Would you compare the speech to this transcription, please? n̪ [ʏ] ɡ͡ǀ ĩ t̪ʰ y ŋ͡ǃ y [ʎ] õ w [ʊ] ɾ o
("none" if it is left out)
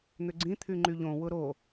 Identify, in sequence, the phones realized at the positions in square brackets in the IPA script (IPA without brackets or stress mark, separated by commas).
ʏ, ʎ, ʊ